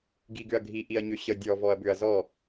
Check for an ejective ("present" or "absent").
absent